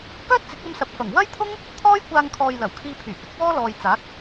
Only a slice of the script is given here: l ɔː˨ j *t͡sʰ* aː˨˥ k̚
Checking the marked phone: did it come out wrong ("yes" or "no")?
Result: yes